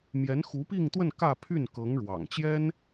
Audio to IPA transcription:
m j ɛ˧˥ n x u˧˥ p i˥˧ ŋ t̪ w ə˥˧ n k ä˥˧ pʰ y˥˩ n k ɤ˧˥ ŋ ɻ w ɑ̰˨˩ ŋ t͡ɕ j ɛ˥ n

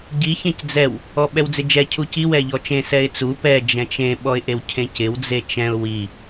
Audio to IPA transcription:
ɟ i ç ẽ c d͡z ɛ w | ɔ ɓ ɛ w d͡z ɪ d͡ʒ ɛ cʰ u c i w ɛ ʎ ɔ t͡ʃ ẽ s ɛ ɪ̯ t͡s u p ɛ d͡ʒ ɛ̃ t͡ʃ ẽ ɓ ɔ ɪ̯ ʔ e w cʰ ẽ c ɪ w d͡z e t͡ʃ ɛ̃ ʊ̯ w i

